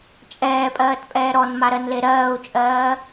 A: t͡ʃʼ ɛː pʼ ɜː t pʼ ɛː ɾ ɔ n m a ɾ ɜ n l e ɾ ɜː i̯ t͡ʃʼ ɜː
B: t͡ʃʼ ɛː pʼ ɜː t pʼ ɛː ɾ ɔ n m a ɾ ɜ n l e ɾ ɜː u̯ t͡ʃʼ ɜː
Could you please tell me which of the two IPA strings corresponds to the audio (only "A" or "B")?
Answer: B